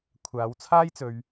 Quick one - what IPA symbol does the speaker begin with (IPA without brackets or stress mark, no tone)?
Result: kʷʰ